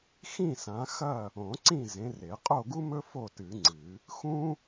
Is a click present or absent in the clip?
present